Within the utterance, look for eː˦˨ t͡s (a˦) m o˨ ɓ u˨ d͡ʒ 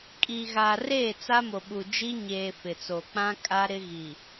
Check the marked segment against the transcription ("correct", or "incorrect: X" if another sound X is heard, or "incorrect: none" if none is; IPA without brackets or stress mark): correct